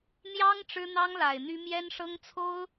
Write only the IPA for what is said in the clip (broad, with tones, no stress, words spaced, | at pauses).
n̪jɑ˥ŋ ʈ͡ʂɻ̩˥n̪ɑ˥ŋla˨˩ɪ̯n̪y˥ mjɛ˥nʂɤ˥ŋt͡sʰo˥ʊ̯